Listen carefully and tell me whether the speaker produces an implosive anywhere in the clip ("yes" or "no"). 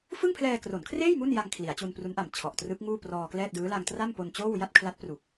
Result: no